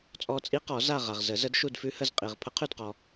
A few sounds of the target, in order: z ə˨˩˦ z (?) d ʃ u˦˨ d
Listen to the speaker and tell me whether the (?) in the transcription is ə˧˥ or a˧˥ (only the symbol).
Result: ə˧˥